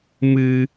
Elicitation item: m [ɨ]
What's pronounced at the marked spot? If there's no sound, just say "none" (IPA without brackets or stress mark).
ɨ